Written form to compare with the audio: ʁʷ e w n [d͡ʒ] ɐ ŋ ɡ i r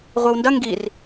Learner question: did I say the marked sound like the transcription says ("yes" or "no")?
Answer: no